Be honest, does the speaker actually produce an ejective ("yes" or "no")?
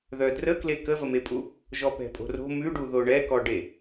yes